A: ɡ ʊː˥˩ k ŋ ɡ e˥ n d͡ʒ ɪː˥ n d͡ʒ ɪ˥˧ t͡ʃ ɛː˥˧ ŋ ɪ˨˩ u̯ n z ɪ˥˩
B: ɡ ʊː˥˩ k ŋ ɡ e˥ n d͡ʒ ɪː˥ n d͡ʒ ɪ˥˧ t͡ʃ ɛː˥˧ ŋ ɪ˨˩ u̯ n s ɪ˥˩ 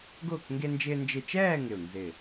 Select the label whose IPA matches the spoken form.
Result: A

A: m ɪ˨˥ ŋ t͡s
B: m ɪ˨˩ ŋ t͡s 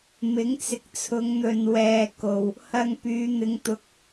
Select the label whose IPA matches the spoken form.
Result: A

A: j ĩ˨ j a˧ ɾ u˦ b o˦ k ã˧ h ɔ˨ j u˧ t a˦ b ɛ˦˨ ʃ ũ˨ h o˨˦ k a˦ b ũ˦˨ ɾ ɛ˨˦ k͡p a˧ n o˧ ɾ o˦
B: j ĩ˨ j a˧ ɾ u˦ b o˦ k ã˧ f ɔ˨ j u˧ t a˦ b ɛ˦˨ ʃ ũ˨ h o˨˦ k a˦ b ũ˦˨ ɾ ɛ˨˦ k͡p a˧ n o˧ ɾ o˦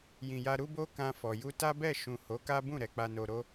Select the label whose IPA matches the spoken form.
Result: B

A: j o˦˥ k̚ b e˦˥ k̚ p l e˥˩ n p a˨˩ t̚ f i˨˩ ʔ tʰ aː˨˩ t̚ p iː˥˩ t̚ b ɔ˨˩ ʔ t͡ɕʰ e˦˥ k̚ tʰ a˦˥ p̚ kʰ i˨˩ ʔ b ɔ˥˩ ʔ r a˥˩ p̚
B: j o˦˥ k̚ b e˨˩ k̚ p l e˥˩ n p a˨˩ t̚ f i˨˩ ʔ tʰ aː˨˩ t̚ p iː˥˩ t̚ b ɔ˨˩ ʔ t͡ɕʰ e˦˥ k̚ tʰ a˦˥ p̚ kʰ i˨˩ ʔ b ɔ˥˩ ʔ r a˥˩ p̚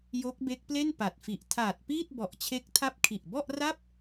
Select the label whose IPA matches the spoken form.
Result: A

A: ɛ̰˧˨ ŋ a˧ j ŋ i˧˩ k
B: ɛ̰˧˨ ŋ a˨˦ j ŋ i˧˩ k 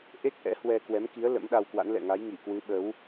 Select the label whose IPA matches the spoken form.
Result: B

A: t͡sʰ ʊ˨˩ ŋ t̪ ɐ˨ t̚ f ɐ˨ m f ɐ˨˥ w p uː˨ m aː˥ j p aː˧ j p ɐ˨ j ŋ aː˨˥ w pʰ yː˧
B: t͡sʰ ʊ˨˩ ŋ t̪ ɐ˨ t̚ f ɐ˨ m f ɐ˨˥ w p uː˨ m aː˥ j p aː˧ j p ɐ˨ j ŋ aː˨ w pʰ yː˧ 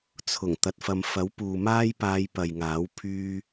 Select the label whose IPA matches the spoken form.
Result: A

